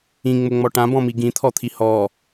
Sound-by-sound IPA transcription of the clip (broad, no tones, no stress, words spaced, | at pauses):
ĩŋ͡mʊŋ͡mɔ ʈãbɔ̃mi ɡĩt̪ʰɔt̪ʰi hɔ